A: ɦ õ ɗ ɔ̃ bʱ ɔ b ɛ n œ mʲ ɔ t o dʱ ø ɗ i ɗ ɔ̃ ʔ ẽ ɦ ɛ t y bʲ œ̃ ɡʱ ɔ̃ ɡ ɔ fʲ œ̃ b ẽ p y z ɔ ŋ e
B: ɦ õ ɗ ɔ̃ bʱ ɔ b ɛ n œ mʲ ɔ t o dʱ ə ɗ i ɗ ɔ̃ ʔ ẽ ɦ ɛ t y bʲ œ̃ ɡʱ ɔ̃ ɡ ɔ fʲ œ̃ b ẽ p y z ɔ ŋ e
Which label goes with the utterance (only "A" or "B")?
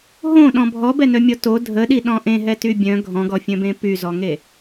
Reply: B